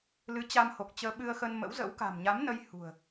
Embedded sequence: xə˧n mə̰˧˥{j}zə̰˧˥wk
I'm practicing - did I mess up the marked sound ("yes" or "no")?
yes